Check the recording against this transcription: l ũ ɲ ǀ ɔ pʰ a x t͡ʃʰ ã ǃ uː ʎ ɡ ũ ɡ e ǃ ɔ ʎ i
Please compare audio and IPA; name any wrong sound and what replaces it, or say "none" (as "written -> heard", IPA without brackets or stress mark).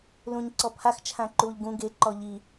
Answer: none